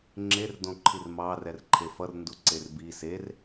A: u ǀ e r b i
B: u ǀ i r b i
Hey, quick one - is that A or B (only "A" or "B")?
A